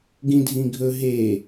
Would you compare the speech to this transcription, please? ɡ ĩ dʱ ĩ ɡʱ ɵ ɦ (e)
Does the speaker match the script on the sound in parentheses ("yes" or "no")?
yes